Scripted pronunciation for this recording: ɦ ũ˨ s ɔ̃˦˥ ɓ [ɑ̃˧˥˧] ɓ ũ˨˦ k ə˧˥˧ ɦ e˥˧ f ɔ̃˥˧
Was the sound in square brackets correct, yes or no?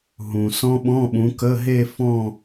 no